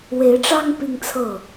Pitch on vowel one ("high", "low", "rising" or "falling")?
rising